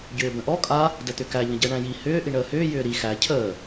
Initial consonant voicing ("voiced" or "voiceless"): voiced